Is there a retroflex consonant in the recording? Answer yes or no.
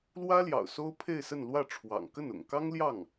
yes